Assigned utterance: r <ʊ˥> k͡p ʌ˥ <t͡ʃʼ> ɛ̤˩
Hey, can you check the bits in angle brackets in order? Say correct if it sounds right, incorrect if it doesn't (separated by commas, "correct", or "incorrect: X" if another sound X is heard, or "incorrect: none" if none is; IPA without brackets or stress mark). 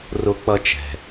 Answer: correct, incorrect: t͡ʃ